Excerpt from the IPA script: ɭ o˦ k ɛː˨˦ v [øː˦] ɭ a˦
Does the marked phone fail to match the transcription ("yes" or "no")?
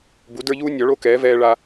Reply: yes